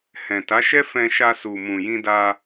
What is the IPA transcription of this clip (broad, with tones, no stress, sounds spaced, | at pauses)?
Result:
h ɛ̃˨ t a˨˦ ʃ ɛ˦ f ɛ̃˧ ʃ a˧ s u˨ m ũ˨ j ĩ˧ d a˧